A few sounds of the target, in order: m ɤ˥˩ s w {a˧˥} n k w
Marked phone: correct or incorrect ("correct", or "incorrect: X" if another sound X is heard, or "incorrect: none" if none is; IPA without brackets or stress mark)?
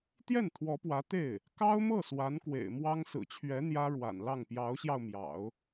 correct